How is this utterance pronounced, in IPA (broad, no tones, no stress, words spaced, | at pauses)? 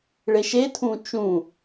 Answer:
ɭeʃetʰũ t͡ʃũ